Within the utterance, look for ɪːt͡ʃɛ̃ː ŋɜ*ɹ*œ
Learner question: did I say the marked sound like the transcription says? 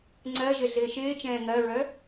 yes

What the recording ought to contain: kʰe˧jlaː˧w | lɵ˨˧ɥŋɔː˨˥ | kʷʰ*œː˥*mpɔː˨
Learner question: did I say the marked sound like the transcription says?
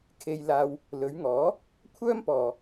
yes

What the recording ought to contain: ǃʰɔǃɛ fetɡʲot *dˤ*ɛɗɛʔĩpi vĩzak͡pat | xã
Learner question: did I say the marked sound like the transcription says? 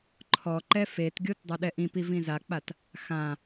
yes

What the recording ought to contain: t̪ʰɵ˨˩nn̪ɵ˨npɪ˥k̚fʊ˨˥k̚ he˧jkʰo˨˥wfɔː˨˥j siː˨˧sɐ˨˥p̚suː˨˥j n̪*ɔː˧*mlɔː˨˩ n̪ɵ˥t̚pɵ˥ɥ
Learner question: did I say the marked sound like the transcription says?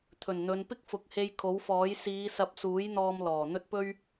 yes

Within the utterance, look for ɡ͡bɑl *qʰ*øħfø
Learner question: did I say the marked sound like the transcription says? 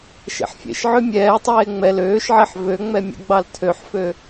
no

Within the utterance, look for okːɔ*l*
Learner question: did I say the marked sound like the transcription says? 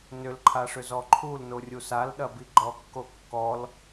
yes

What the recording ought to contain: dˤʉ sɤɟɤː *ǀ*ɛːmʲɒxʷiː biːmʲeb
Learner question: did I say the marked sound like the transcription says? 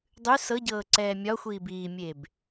yes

